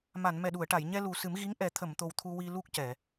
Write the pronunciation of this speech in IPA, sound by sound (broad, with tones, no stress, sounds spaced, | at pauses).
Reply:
m a˨˩˨ n m ɛ˨˩ ɗ u˨˩˨ ə̯ ʈ a˨˩˨ j ɲ ɛ˧ l u˨˩ s ɨ˨˩˦ m ɣ i˧˥ ŋ ʔ ɛ˨˩˦ t̪ʰ ə˨˩˨ m t̪ o˨˩ w t̪ʰ u˧ w i˧ l u˦˥ k̚ c ɛ˨˩˨